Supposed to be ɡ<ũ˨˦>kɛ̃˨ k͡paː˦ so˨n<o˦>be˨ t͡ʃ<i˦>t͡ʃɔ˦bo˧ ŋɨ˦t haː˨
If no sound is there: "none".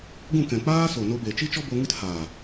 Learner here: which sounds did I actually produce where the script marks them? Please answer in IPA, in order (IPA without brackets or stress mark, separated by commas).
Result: ũ˦˨, o˧, i˦